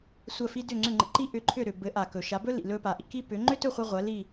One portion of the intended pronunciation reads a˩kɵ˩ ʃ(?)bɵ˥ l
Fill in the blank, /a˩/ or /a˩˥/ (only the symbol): a˩˥